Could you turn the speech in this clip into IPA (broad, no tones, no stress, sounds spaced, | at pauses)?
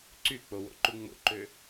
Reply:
ǀ y k͡p o w o̰ ǃ u ŋ͡m o̰ ǃ ø